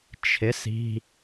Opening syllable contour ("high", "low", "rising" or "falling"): rising